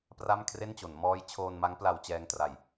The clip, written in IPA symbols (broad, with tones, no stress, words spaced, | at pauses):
pra˥˩mkʰre˥˩nt͡ɕo˩˦n mɔː˦˥jt͡ɕʰoː˧nma˦˥ŋ pla˧wt͡ɕɛː˧ŋtra˨˩j